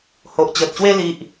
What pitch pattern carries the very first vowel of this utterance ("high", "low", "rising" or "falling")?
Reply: low